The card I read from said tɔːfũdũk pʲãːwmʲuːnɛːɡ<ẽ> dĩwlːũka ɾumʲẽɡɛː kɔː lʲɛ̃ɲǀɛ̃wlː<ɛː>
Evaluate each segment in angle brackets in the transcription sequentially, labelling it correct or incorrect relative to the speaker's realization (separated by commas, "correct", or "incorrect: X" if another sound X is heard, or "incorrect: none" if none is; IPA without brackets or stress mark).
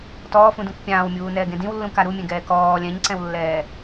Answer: correct, correct